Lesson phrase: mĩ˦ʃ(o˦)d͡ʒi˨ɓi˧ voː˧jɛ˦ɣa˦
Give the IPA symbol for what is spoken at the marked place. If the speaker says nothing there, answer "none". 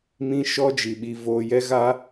ɔ˦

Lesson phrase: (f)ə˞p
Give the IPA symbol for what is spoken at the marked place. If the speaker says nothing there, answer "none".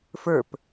f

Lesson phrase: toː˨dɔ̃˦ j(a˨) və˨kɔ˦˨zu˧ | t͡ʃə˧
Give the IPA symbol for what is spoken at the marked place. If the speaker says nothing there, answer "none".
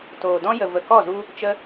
ə˨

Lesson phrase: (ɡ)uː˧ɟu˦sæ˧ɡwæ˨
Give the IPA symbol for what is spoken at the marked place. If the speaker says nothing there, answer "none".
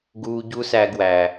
ɡ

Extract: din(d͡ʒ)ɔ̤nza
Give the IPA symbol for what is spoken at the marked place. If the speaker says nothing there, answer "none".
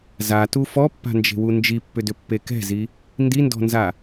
d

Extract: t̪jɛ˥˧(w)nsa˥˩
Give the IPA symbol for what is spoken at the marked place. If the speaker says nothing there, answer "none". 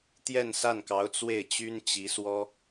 none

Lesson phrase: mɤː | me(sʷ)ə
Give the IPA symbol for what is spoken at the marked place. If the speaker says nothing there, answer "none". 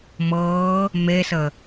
s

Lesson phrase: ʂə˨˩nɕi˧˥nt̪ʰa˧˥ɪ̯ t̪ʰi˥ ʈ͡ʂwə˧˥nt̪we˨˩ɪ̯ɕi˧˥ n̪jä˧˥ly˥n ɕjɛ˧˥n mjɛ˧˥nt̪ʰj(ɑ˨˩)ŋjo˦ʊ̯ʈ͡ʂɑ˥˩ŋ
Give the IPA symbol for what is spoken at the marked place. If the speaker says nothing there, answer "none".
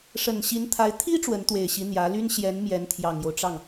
ɑ˨˩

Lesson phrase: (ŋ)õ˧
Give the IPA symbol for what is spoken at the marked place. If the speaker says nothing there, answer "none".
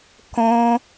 k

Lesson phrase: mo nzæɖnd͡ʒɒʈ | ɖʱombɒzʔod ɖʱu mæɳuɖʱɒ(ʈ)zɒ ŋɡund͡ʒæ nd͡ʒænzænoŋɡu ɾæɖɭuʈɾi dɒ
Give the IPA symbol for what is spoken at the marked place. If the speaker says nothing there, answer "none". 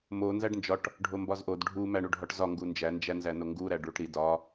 ʈ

